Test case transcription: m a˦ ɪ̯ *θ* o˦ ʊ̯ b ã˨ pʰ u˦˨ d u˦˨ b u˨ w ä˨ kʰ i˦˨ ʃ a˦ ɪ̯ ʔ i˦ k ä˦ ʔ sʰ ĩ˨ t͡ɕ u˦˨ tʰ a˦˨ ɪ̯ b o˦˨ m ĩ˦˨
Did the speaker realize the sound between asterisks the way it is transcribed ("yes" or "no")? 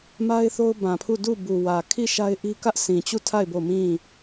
yes